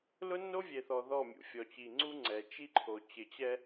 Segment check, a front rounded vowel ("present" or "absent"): absent